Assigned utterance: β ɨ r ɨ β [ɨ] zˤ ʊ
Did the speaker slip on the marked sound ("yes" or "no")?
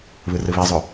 yes